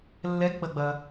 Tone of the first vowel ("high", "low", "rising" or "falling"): rising